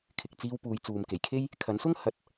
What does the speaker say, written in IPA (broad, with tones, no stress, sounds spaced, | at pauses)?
kʰ ɪ˨ k̚ t͡s iː˧ w p uː˨˧ j t͡s uː˨ m k e˨˩ j kʰ e˥ j | kʰ ɐ˨˥ n s ʊ˥ ŋ h ɐ˨˥ t̚